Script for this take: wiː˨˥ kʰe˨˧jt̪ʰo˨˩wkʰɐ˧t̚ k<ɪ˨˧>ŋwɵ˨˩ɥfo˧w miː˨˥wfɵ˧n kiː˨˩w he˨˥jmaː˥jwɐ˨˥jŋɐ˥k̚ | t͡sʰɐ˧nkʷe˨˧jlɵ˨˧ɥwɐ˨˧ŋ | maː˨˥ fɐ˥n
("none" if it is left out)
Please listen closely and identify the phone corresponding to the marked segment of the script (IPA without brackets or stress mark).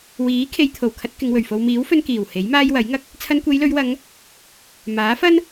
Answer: ɪ˨˧